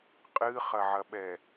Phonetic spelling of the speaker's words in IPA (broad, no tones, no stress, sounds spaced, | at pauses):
qʼ ɨ χ ɐ ʕ ɐ ɓ ɛ